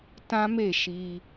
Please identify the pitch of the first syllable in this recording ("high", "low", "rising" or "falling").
high